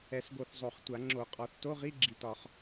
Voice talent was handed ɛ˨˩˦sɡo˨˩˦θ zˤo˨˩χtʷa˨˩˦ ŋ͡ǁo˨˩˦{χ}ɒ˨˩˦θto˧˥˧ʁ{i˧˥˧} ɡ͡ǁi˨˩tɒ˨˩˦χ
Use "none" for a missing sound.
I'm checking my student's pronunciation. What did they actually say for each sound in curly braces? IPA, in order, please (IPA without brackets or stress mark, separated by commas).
qʼ, i˧˥˧